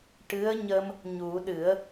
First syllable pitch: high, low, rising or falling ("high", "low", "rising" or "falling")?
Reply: rising